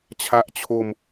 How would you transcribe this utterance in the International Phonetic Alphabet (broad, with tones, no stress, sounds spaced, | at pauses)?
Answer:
t͡ɕʰ a˥˩ ʔ t͡ɕʰ o˧ m